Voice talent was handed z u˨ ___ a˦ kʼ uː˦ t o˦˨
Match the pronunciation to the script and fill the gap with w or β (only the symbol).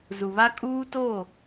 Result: β